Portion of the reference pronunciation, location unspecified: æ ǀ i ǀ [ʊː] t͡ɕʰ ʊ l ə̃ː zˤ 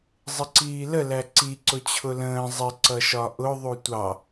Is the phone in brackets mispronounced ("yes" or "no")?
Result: yes